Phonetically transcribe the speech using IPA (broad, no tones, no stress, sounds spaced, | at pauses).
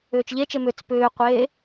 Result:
ʏː t͡ʃ ʎ e t͡ʃ e m ʏ t͡s p ʏː qʷ eː